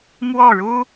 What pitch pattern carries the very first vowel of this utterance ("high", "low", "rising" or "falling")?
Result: falling